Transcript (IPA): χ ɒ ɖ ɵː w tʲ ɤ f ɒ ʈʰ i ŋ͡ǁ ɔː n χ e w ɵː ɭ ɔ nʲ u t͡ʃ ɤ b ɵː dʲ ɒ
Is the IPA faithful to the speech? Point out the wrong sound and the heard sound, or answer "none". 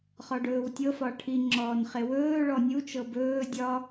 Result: none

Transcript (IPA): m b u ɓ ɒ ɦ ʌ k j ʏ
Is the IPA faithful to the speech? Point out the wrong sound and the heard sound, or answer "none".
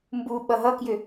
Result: ɒ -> ʌ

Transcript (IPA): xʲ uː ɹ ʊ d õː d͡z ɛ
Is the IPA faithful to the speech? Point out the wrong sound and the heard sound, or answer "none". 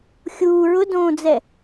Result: none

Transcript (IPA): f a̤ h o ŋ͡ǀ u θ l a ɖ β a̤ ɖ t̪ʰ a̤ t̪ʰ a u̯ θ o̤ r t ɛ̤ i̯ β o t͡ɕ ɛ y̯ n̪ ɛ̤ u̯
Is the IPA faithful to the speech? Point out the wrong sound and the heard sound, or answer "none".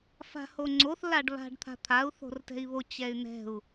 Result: u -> o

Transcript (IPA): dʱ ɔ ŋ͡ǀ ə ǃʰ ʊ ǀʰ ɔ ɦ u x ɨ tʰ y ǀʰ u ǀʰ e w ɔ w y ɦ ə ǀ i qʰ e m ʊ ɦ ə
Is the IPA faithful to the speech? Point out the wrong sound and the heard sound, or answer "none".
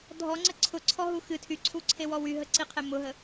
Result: ǃʰ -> ǀʰ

